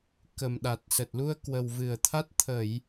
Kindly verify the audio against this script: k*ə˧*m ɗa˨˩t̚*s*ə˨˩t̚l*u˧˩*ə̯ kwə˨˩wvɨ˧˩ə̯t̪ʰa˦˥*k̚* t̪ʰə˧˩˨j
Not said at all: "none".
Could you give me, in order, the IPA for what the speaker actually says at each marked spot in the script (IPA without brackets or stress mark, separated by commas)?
ə˨˩, s, u˧, t̚